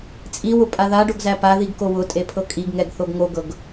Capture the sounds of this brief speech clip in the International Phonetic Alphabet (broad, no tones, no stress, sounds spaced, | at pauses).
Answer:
t͡sʼ i w ʊ pʼ a ð a ɖ o ɡ z æ p a ð i ɡ k o w ʊ tʼ e pʰ ɤ kʼ i ɡ ŋ ɛ ɡ θ o ɡ ŋ o ɡ ɤ ɡ